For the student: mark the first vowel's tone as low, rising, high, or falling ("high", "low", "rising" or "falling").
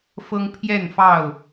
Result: high